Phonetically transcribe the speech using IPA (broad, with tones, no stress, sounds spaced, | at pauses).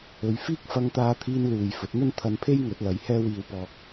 ɵ˨˧ ɥ f iː˥ k̚ f ɐ˧ ŋ t̪ aː˧ t̪ʰ iː˧ n l uː˨ j f ɵ˨˥ t̚ n̪ ɵ˥ n t̪ʰ ɐ˧ n pʰ e˥ j ŋ ɵ˨˥ t̚ l ɐ˨˧ j h ɛː˥ w iː˧ w p ɔː˧ k̚